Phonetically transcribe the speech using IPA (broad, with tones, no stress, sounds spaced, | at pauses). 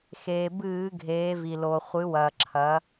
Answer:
x eː˩ b ɨː˧˩˧ ɡʱ eː˩˧ v i˩ l o˩ χʷ ɨ˩˧ w ɐː˩ ǁʰ ɐ˩˧